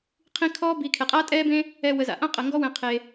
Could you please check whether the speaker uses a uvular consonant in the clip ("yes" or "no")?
yes